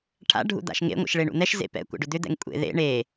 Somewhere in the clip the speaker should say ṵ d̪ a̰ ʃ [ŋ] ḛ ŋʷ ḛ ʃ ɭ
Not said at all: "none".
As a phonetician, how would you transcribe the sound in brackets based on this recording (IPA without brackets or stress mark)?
ŋ